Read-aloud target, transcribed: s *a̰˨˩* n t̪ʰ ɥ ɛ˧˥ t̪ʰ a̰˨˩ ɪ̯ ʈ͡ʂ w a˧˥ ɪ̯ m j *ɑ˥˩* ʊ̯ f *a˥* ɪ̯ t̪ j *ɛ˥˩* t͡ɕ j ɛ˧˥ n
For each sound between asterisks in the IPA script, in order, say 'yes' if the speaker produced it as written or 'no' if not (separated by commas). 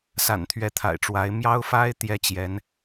yes, no, yes, no